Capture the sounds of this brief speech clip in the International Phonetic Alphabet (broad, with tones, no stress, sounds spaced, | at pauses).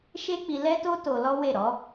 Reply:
ʃ e˦ k͡p i˧ l ɛ˦ t o˦ t o˧ l ɔ˦ w e˦˨ ɾ ɔ˨˦